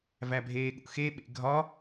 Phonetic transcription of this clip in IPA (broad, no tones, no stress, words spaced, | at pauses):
væbʱeːɠṵxe ɓḛɡʱɒ